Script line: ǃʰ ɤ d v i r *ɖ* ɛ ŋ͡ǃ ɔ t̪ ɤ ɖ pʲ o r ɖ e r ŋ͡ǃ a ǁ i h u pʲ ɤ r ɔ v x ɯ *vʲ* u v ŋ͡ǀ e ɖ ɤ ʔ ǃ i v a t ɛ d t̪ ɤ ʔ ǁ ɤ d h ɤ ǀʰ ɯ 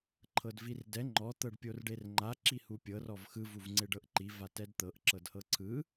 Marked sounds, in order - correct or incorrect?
incorrect: d, incorrect: v

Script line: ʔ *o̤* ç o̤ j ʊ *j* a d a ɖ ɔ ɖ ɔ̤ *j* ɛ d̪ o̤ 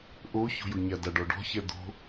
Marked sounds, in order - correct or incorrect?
incorrect: o, incorrect: ɲ, incorrect: ç

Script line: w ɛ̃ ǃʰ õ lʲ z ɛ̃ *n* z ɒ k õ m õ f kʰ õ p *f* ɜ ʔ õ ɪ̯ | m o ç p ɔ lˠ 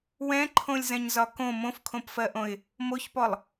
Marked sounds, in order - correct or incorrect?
incorrect: ɲ, correct

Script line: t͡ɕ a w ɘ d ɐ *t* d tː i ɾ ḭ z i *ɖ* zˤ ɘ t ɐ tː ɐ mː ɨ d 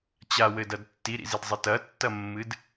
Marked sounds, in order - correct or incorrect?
incorrect: none, incorrect: d

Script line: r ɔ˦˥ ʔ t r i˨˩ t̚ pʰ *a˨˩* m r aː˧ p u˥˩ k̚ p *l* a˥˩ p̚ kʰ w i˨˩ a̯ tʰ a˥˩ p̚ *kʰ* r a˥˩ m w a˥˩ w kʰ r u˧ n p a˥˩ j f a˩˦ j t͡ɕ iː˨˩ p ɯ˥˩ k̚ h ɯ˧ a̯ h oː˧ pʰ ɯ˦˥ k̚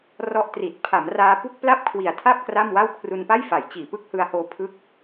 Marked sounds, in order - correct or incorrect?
incorrect: a˩˦, correct, incorrect: k

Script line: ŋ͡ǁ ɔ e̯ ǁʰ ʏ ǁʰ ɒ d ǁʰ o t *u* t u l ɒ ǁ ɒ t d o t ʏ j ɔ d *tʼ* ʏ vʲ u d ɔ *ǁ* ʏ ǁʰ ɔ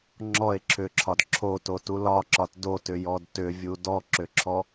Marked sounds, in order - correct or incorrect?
incorrect: o, incorrect: t, correct

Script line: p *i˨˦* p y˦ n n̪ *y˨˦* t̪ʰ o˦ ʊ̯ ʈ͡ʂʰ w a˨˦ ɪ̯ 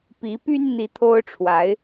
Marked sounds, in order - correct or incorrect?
correct, incorrect: i˨˦

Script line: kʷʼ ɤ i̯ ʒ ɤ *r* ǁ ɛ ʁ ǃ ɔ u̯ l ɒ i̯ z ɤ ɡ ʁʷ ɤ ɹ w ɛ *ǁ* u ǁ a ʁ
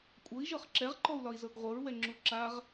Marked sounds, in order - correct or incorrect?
incorrect: χ, incorrect: ŋ͡ǁ

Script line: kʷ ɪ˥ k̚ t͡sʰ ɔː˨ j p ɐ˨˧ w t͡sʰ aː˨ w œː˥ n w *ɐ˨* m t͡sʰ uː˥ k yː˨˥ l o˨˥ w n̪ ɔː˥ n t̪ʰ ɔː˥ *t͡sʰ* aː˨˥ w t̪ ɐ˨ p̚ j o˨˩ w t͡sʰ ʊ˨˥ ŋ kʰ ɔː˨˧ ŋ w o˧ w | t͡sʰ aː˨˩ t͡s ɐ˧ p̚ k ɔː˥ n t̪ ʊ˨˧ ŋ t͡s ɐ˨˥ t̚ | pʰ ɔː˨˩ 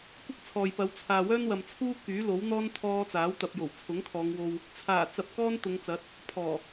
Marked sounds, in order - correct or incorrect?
correct, incorrect: t͡s

